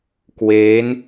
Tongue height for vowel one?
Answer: mid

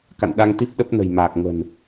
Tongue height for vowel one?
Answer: low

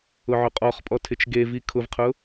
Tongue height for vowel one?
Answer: high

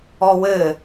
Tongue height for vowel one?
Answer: mid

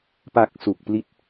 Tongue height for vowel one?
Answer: low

